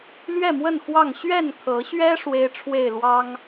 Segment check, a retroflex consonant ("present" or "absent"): present